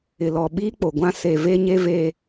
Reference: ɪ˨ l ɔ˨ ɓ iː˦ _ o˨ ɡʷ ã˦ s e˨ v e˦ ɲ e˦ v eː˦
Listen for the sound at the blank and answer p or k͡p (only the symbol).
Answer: k͡p